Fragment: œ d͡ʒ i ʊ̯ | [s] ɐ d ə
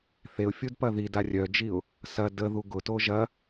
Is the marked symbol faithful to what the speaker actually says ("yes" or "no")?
yes